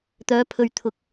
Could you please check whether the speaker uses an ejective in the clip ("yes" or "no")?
no